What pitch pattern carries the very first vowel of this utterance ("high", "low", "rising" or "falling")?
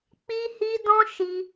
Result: high